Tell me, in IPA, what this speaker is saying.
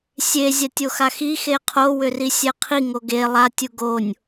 sʲe zʲatʲoxaxi xeqʰo wʏrisʲɛqʰi ŋoɡe lˠa tʲuɡonʲ

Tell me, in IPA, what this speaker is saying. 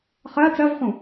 χɜ t͡sɜvχũ

